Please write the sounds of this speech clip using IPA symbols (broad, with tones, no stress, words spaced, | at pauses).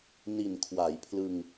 ni˨˩nkʰwa˩˦jpʰlɯ˧ŋ